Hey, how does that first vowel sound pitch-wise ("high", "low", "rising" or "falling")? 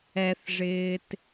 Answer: low